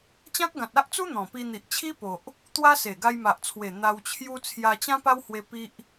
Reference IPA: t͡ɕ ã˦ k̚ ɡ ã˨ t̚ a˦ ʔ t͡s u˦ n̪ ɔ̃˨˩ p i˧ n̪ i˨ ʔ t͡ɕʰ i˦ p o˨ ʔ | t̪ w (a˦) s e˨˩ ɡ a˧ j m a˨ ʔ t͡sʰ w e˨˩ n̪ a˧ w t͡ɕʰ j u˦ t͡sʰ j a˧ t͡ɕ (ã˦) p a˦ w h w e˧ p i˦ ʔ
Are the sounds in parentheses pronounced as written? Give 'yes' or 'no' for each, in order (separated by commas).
yes, yes